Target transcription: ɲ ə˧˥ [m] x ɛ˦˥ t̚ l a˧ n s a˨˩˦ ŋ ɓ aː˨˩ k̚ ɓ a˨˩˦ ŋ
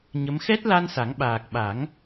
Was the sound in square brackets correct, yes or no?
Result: yes